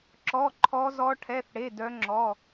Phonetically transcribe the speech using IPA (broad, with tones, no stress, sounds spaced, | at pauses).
ǁ ɔ˧˥˧ ǃʰ ɔ˦˥ z ɔ˦˥ ʈʰ ɛ˧˥˧ θ ɽ e˧˥˧ d œ˦˥ ŋ͡ǁ ɔ˧˥˧